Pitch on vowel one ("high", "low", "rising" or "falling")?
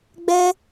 high